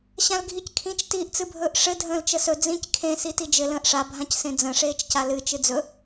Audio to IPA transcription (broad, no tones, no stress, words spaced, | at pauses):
ɕãlɡʱickʰĩt͡ʃ tiːʔt͡sɨbʱɵːʔʂɘ dʱə̃ːlt͡ʃəsɵ d͡zĩc kʰẽ sitid͡ʒɘ lə̃ːʔʂa bʱãcsẽd͡zə̃ ʂeːt͡ʃcalɨ t͡ʃɨd͡zɵ